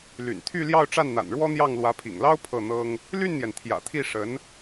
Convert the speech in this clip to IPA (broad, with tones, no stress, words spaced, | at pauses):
ly̰˨˩nt̪ʰy˥˧ ljɑ˥˧ʊ̯ʈ͡ʂa˥˩nn̪a̰˨˩n ɻwɔ˥n̪jɑ˥˩ŋ lwä˧˥pʰḭ˨˩ŋlɑ˥ʊ̯ pʰɤ˥˩n̪ɤ˥ŋ | ly˥˩nn̪jɛ˩n t̪ʰjä̰˨˩t̪ʰi˥˩ ʂə˧˥n